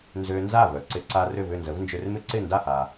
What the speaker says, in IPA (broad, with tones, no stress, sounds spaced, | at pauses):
n z ø˧ n z a˥˩ v œ˩ ǀ ɪ˧ ǀ a˧ r ʏ˥˩ v ʏ˥˩ n z ə˩˥ v n d͡ʒ ø˧ r m ɪ˥ ǀ ɪ˥˩ n d a˥˩ h a˩